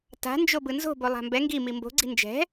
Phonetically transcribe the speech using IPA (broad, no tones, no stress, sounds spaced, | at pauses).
t a̤ n d͡ʒ o b ɯ n z o̤ b o lˠ a̤ m b ɛ ŋ ɡ i m i m b o̤ ɡ͡ǀ i̤ n d͡ʒ ɛ̤